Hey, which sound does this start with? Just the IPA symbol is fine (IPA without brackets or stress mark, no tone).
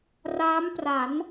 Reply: r